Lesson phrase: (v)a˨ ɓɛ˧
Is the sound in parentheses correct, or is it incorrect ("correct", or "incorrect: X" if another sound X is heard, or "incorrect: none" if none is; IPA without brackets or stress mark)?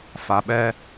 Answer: incorrect: f